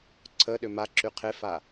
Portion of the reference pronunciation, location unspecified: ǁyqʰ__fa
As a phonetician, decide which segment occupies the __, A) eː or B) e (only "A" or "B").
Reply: B